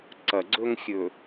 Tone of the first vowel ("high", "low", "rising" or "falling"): low